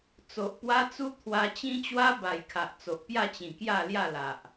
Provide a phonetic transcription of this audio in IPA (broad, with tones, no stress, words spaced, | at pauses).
t͡so˨ʔpwa˦ t͡su˦t̪ʰwa˧t͡ɕĩ˦ t͡ɕwa˦ba˨˩jkʰa˨ʔ t͡so˨ʔpja˥˧t͡ɕĩ˨˩kja˥˧ lja˥˧la˨ʔ